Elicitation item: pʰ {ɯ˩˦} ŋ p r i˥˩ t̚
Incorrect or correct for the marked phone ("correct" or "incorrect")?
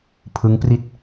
incorrect